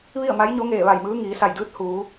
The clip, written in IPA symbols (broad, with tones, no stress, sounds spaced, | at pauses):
ʋ i˥˨ ə̯ m a˧˥ j ɲ o˧˥ ŋ eː˧˩ ʋ a˧˩ j m ɯː˧˥ ŋ iː˩˧ s a˧˩ j d ɯː˧˥ t̚ h uː˩˧